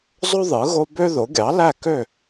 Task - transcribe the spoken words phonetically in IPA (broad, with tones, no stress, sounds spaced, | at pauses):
zˤ o˥ ðˤ ɯ˩˥ ɣ o˥ b ø˥ ð o˩˥ ɡʲ ɑ˩˥ l æ˥˩ k ø˥˩